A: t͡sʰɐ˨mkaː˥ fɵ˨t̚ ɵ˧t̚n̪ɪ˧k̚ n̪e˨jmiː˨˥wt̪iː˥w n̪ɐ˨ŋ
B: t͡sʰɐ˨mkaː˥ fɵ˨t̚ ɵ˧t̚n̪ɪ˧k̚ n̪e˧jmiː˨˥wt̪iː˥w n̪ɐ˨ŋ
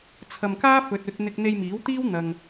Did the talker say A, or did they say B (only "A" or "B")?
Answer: B